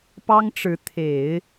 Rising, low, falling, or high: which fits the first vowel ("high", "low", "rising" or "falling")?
high